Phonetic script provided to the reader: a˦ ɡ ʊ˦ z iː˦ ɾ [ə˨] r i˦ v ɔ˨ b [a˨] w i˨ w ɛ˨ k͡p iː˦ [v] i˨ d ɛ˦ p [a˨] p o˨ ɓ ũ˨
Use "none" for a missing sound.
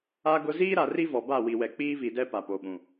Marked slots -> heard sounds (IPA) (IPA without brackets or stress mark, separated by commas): a˨, a˦˨, v, a˨